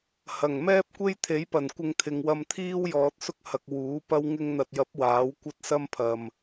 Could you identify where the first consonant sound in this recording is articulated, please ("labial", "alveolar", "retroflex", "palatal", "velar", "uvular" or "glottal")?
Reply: glottal